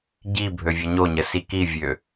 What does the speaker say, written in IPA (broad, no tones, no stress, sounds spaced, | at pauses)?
ɟ i bʱ ø vʲ ɒ ɲ o ɲ ə s i k i vʲ ø